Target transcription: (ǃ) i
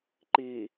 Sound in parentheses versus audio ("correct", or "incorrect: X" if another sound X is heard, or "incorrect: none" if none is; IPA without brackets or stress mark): correct